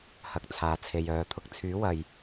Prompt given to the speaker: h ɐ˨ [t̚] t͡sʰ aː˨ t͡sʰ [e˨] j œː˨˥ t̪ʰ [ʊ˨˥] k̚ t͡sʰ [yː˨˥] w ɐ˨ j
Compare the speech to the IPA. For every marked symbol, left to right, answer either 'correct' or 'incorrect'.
incorrect, correct, incorrect, correct

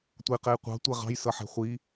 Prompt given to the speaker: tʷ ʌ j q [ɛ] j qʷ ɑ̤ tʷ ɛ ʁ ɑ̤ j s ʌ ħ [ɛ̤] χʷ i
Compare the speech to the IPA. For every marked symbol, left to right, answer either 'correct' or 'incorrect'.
correct, correct

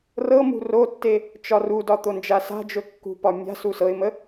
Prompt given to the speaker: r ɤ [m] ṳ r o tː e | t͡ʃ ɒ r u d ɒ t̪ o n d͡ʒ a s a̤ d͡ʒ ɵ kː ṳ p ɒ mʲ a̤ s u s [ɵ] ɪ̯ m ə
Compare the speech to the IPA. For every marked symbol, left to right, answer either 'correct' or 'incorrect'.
correct, incorrect

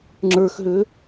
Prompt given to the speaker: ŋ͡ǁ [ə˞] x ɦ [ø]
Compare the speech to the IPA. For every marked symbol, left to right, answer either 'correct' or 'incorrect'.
correct, correct

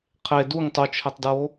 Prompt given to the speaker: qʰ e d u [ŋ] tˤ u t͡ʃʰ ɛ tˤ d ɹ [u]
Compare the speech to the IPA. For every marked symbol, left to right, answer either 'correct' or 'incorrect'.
correct, incorrect

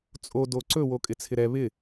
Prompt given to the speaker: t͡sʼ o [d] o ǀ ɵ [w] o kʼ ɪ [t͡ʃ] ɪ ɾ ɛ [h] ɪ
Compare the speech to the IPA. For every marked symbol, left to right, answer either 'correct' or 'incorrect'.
correct, correct, incorrect, incorrect

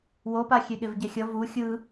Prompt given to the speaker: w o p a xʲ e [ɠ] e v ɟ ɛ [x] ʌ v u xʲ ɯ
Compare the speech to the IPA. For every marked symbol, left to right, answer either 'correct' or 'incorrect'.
correct, incorrect

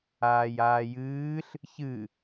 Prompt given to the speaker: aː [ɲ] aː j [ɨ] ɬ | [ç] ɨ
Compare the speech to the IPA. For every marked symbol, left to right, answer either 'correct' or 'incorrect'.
incorrect, incorrect, correct

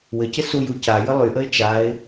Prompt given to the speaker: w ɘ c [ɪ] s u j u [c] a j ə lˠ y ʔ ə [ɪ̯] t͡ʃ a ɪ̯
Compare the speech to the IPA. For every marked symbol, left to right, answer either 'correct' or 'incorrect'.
correct, correct, correct

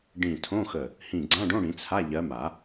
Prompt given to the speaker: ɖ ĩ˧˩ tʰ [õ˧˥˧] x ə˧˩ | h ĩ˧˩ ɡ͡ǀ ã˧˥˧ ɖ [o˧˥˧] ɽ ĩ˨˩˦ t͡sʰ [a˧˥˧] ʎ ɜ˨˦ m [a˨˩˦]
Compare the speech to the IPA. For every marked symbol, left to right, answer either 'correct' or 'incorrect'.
correct, incorrect, correct, correct

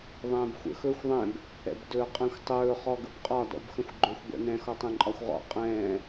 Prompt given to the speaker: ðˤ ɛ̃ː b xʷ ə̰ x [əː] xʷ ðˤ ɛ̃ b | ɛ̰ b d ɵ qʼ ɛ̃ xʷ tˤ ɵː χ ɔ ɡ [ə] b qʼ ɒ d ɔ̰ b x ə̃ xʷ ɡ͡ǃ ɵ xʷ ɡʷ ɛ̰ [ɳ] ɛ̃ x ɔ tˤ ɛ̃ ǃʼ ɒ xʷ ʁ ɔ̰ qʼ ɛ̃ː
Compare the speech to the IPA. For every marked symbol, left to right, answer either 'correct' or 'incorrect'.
incorrect, correct, incorrect

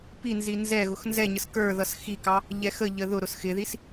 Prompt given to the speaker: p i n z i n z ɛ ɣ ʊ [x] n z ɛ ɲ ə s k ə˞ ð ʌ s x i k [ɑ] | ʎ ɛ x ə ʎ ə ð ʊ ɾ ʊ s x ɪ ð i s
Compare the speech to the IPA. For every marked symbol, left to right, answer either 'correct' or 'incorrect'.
correct, correct

